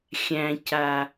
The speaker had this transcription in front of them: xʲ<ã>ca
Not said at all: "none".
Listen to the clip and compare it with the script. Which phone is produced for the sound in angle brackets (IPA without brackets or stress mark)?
æ̃